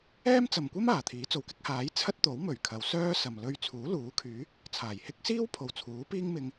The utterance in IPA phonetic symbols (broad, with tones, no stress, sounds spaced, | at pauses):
ɛː˥ m t͡s ɐ˨ m kʷ ɐ˥ m aː˨˩ t̪ʰ iː˨˥ t͡s o˨ w k ɪ˥ k̚ h aː˨˥ j t͡sʰ ɐ˥ t̚ t̪ o˨˥ w m ɵ˨˩ ɥ kʰ ɐ˨˧ w s œː˥ s ɐ˨ m l ɵ˧ ɥ t͡sʰ uː˨˥ l uː˨˥ kʰ yː˨˥ | t͡sʰ aː˨˩ j h ɪ˥ k̚ s iː˥ w pʰ o˨ w t͡sʰ uː˨˥ p iː˥ ŋ m ɪ˧ ŋ